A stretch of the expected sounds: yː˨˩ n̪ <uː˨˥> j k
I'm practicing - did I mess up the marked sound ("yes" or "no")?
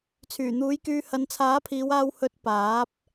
no